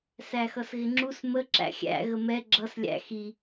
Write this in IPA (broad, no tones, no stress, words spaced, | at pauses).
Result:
sæxʌsɣɪŋ͡ǁus mə ǁæ̰xʲæ̰ ɣəmɛ ɡ͡ǁʌs lʲæ̰ xi